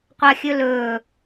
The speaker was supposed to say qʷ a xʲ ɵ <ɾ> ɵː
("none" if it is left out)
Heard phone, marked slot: l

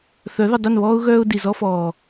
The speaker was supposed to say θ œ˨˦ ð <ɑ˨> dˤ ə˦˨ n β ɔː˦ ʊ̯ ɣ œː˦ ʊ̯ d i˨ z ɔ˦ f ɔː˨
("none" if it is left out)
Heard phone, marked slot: ə˨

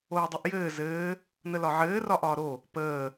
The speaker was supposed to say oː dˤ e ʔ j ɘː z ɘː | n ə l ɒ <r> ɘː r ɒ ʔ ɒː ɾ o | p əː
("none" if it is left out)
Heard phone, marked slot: ʕ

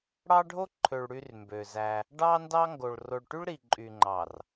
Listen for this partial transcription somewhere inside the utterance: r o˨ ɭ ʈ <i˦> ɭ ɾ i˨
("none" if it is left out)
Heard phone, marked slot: y˦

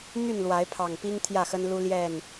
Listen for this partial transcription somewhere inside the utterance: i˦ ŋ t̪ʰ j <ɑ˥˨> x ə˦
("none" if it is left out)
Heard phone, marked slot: ä˥˨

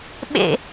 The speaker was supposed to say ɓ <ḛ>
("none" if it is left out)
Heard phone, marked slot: ḛ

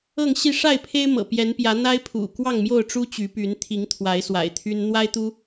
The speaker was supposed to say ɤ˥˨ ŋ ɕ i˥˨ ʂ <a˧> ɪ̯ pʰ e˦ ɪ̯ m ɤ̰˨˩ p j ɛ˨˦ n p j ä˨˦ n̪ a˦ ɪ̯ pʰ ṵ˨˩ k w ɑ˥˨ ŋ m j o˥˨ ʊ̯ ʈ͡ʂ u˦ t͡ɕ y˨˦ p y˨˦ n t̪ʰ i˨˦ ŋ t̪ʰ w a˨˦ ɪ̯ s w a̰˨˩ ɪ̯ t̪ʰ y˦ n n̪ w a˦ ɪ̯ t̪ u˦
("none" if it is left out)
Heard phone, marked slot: a˥˨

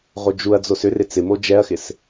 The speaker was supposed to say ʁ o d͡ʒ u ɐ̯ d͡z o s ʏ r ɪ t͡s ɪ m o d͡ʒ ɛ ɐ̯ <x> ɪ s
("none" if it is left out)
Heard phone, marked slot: x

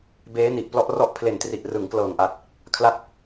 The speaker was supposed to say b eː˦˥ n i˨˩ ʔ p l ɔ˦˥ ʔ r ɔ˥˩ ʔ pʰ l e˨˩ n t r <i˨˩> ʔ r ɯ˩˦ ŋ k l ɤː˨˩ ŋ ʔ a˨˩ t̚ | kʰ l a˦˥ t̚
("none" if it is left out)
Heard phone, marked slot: i˨˩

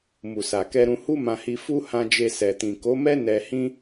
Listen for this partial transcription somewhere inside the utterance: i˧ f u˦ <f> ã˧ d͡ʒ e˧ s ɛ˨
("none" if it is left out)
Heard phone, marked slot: h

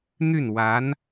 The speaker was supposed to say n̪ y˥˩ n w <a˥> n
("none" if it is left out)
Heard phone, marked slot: a˧˥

